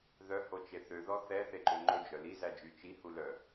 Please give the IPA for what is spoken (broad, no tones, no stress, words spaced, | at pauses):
ðœhot͡ʃe θøðɔ θɛθeǃø ŋ͡ǃɵd͡ʒœ lizæd͡ʒy t͡ʃihulœ